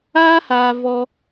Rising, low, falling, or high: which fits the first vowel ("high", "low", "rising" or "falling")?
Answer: high